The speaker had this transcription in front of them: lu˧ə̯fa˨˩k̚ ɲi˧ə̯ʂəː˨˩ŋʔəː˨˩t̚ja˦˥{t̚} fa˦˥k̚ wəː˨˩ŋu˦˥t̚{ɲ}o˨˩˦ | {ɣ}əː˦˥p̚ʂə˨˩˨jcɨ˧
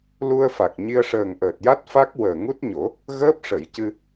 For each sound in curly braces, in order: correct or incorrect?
correct, correct, correct

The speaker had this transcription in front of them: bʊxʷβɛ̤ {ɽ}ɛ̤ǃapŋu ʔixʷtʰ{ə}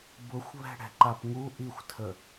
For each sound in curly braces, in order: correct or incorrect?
correct, correct

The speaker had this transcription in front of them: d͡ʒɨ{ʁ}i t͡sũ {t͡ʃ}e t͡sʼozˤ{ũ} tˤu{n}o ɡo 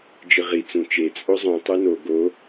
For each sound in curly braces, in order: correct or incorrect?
correct, correct, correct, correct

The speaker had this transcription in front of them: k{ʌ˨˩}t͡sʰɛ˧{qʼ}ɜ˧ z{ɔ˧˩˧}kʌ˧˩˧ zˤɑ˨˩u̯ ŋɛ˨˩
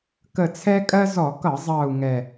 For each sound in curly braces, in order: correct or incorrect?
incorrect, incorrect, correct

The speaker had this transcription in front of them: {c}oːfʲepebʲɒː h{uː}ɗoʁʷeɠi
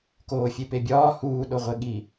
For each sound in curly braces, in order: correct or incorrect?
incorrect, correct

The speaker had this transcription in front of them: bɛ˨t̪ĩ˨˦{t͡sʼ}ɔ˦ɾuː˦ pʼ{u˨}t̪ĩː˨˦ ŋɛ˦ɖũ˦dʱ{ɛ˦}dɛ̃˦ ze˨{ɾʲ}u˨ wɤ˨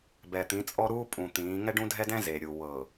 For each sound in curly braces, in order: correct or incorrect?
correct, incorrect, correct, correct

